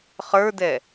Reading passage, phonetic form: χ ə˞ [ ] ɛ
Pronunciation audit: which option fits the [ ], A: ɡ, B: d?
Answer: B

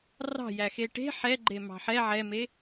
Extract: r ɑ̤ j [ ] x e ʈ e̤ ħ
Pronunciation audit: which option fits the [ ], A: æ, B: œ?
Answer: A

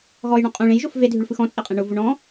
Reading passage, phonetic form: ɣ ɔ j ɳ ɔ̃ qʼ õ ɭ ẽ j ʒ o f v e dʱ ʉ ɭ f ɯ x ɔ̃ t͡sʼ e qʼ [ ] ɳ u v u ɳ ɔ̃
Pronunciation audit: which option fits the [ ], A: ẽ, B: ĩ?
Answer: A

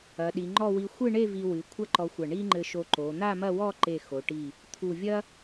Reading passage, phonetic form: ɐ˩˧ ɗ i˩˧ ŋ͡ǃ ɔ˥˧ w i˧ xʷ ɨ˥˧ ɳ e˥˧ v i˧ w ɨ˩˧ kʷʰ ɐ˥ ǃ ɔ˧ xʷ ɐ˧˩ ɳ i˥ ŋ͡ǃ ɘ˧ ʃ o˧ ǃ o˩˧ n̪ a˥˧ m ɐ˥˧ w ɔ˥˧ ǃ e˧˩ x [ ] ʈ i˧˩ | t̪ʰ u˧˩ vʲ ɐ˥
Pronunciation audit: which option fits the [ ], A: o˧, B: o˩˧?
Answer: B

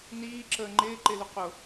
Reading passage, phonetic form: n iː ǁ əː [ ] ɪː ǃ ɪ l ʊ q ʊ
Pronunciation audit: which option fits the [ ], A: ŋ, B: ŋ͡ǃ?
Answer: B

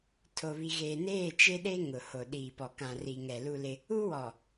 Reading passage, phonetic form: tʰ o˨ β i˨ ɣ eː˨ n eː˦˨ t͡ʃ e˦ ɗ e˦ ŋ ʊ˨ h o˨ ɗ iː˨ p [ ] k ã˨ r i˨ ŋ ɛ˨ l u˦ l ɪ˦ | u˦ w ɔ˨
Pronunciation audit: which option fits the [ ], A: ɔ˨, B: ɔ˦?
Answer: A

